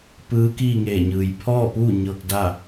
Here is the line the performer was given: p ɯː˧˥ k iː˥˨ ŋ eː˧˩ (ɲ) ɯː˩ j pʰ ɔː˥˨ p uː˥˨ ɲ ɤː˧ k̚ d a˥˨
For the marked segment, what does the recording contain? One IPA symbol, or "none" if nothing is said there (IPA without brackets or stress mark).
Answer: ɲ